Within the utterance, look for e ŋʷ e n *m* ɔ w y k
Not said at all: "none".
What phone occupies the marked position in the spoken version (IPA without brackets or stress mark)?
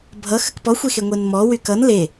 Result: m